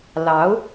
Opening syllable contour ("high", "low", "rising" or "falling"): rising